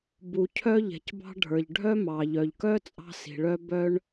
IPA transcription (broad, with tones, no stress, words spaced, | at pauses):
bu˩cʰœ˥ʎɛ̤˩cbɑ̤˥ ɖʱə˞˩ʎɖʱœ˥ mɑ˩ʎœ˩ʎkœ˥ t͡sʼɑ̤˥si̤˩ɭœ˥ bœ˥ɳ